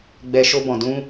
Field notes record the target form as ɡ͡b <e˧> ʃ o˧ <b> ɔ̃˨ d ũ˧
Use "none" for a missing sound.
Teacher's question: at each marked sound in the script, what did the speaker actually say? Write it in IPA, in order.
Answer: ɛ˧, b

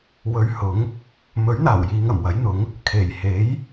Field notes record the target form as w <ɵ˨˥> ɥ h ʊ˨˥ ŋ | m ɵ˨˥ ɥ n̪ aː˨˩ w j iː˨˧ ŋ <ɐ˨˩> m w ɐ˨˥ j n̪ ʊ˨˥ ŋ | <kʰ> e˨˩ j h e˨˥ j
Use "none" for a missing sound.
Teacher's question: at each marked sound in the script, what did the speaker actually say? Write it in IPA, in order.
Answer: ɵ˨˧, ɐ˨˩, kʰ

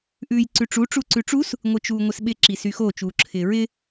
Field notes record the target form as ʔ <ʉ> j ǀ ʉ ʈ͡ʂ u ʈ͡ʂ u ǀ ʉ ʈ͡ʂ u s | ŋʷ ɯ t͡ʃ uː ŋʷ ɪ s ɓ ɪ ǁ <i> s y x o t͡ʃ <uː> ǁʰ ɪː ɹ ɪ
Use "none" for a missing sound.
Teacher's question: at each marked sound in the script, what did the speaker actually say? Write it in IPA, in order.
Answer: ʉː, i, uː

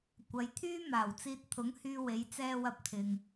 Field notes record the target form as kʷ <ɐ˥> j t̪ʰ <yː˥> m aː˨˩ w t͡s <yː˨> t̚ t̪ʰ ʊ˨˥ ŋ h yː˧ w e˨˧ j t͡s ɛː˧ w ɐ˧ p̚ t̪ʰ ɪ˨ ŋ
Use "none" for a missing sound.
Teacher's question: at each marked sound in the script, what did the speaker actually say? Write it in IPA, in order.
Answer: ɐ˨˧, yː˥, iː˨

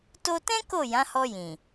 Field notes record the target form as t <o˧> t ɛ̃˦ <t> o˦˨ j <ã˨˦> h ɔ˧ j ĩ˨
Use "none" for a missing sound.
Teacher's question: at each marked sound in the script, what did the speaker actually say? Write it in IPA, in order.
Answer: o˧, k, ã˨˦

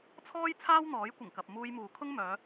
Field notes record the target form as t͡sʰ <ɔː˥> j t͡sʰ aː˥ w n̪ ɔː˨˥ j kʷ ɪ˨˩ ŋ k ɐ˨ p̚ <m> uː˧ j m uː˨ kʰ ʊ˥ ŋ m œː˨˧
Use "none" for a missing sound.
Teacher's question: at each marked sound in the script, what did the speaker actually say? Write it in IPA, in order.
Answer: ɔː˥, m

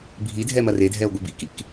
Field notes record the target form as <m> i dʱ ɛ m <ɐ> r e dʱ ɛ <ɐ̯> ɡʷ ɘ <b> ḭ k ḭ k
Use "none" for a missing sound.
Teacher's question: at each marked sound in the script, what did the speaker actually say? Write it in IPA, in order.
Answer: bʱ, ɐ, o̯, b

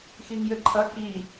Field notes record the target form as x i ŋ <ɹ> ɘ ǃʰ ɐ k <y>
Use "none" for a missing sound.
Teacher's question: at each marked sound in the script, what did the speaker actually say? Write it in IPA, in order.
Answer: j, i

